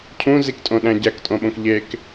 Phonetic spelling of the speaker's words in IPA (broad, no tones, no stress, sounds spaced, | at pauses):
cʰ ũ z i k tʼ õ ɗ æ̃ ɟ æ k tʼ õ ɓ õ k ʎ e k